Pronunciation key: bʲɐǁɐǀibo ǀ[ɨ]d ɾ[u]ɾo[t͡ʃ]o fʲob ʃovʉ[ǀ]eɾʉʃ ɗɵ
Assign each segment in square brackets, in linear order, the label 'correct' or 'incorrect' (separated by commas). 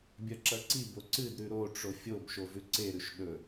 correct, incorrect, incorrect, correct